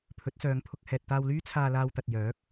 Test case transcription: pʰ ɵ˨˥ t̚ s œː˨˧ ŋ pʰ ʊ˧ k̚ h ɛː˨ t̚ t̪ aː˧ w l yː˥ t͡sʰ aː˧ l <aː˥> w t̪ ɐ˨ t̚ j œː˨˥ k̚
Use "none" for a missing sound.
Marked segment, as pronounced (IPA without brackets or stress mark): aː˧